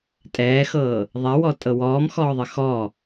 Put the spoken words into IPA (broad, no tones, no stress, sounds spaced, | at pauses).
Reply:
tʼ ɛː x ɤː | ðˤ ɛ w ɔ tʼ ɤ w ɔː m x ɔː ðˤ ɘ x ɔ